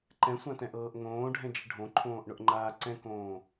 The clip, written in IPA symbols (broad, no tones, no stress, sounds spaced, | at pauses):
ǃ ɛ̃ sʷ ã t ɛ̃ ʔ ɤː ʔ ŋ õː ɖʱ ɛ̃ d͡ʒ ɪ ɖʱ õ ǃʰ õː ʔ ɳ ʊ ʔ ŋ͡ǃ aː ǀ ɛ̃ k õː